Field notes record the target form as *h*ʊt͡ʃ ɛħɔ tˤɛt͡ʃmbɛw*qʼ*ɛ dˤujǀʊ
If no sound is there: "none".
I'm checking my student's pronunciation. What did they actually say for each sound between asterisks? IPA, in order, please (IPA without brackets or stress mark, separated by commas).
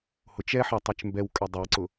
h, kʼ